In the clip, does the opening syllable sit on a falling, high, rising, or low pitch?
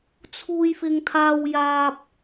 high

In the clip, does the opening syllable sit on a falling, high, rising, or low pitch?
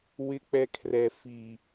high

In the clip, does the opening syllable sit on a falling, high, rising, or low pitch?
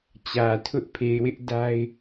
low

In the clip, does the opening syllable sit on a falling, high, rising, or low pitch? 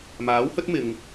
rising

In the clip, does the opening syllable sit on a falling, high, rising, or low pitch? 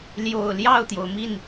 low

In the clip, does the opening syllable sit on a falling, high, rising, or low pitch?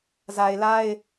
low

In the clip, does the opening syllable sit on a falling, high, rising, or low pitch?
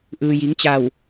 low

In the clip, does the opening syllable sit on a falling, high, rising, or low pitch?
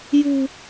high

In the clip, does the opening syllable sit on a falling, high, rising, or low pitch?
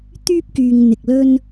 high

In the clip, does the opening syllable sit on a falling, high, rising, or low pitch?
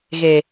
low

